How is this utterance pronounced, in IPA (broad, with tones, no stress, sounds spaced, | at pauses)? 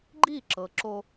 ɡ͡ǃ i˦˨ ǁ ɤ˨ ǁ o˦